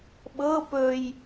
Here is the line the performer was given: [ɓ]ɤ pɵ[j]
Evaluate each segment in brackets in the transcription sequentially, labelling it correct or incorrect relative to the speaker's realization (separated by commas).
correct, correct